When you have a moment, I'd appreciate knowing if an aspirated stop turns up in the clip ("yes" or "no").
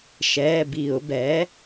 no